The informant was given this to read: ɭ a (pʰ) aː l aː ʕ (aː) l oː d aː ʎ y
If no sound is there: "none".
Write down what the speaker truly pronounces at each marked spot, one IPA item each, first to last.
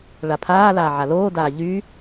pʰ, a

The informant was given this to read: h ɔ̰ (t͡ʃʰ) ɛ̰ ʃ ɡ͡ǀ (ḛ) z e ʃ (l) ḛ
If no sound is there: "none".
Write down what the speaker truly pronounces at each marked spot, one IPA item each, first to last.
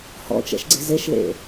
t͡ʃ, e̤, l

